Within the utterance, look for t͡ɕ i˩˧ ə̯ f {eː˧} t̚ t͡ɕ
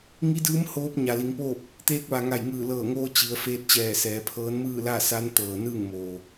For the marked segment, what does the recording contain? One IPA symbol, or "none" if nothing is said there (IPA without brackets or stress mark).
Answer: eː˧